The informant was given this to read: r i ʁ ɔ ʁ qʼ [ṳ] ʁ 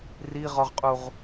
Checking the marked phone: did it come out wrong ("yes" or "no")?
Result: yes